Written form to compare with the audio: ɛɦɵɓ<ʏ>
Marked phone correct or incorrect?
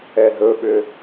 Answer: correct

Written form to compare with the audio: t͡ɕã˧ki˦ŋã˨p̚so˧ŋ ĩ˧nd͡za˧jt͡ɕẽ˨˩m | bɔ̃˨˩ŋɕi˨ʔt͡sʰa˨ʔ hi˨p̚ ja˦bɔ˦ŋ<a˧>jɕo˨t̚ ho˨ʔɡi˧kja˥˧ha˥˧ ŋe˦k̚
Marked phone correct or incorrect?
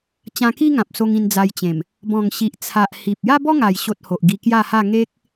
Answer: incorrect: a˨˩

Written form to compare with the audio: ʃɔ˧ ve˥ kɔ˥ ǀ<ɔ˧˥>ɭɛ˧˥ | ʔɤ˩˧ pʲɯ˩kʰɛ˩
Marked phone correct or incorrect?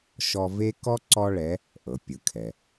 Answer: incorrect: ɔ˥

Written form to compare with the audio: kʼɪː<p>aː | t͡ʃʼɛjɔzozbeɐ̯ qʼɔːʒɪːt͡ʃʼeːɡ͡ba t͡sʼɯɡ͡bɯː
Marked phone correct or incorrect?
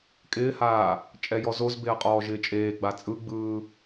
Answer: incorrect: h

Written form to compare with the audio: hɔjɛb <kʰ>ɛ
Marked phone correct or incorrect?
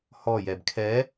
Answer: correct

